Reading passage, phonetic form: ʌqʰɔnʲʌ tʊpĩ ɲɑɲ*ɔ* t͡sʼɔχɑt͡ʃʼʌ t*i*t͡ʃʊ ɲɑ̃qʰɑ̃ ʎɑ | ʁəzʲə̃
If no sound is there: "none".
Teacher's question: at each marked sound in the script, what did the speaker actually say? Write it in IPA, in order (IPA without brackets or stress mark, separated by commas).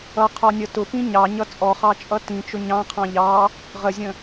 ʌ, ĩ